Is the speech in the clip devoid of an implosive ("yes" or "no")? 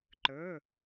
yes